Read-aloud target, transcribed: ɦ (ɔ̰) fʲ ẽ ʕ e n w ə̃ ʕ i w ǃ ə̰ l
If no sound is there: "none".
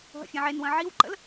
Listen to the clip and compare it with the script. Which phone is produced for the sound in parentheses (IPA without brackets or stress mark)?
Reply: ə̰